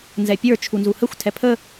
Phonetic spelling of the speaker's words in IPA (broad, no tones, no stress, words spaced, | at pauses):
nzɛpʲə˞ t͡ʃʰunzuhəxʷ tʰɛpʰə